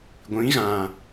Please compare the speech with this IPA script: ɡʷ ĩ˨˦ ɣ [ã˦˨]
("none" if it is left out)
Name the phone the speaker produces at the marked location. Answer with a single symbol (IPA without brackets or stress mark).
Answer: ã˨